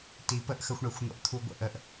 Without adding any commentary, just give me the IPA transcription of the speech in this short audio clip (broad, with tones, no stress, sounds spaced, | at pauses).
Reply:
t i˨˦ p ə˦ ʔ x ə˧ xʷ ɳ e˨ xʷ n̪ o̰˧ ʔ t̪ʰ u˧ ɡʷ ə̰˦˨ ʔ ə˧ ʔ